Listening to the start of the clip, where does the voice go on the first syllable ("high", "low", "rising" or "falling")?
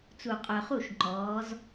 low